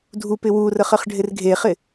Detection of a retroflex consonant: present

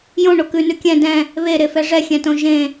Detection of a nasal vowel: present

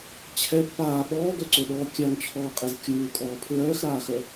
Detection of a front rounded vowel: present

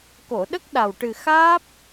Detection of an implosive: present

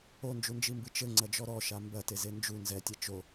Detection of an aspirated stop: absent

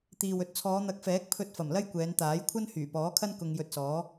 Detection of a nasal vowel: absent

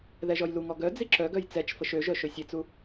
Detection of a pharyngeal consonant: absent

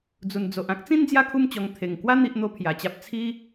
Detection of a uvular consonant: absent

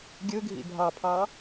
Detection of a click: absent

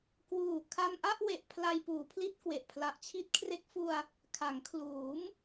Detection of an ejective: absent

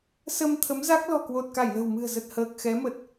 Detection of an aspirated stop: present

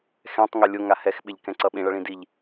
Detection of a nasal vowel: present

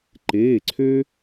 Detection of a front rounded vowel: present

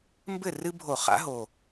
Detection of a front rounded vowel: absent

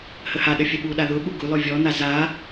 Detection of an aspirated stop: absent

